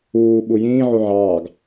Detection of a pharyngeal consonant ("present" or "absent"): present